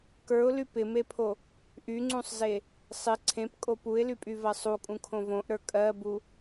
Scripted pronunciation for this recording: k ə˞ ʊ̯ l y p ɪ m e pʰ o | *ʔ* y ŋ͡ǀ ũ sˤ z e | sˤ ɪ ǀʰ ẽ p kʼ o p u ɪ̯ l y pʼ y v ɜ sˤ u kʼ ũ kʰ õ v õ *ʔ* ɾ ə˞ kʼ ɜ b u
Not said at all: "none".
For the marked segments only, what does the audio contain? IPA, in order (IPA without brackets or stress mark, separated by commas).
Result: ʔ, ʔ